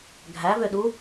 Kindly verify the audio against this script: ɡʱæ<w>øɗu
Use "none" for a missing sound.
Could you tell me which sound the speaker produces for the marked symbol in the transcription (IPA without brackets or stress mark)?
v